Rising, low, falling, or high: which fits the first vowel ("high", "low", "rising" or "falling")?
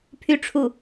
falling